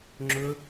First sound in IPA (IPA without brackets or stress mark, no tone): ŋ͡ǁ